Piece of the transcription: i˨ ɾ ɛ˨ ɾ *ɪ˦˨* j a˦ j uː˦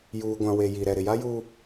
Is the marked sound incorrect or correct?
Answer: incorrect: ɪ˨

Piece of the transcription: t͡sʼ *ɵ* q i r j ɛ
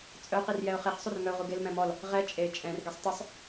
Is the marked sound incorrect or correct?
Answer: incorrect: œ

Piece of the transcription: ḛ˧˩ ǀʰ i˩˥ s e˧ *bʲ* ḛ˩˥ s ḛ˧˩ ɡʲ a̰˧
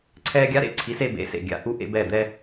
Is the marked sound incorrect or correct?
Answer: incorrect: b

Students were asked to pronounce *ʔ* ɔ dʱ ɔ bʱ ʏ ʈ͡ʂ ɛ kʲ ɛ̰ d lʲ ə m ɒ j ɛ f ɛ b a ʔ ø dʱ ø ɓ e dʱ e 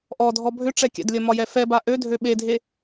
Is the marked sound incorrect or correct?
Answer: correct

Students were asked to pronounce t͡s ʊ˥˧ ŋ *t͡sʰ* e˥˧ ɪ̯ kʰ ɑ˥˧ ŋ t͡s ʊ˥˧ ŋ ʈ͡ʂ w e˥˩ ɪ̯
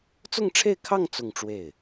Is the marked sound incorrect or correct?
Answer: incorrect: ʈ͡ʂʰ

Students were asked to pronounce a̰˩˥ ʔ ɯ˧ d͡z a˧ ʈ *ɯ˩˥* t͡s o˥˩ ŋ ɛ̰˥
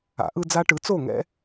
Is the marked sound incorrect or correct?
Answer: correct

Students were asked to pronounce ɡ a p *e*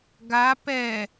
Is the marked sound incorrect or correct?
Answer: incorrect: ɛ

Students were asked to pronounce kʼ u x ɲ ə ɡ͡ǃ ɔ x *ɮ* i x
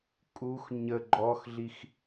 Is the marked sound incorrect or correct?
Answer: correct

